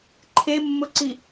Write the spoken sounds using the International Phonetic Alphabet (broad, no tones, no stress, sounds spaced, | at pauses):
ǃʰ e mː ʊ ǀ i